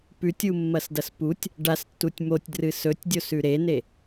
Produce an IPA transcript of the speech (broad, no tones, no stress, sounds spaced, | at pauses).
p ʉ tʲ u mː ɐ s d ɐ s p u tʲ | ɖ a s tː u tʲ m o tʲ d r ɨ s ɵ tʲ dʲ o s ʉ ɾ e n e